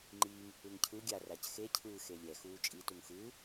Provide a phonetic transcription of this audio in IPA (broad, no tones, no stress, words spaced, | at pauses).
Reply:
ŋ͡ǃiːŋ | ɯŋcʰɯ ɡʲa racxecʰɯː xelʲɛ xuːt͡ʃʼi tuŋxɯː